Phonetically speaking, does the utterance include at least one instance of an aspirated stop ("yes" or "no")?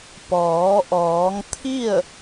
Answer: yes